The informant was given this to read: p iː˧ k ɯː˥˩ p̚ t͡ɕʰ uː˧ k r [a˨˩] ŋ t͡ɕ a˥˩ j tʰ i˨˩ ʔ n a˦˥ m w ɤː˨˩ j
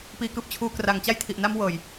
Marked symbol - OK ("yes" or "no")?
yes